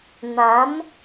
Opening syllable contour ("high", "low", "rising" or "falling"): rising